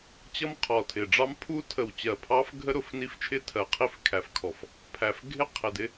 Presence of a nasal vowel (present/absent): absent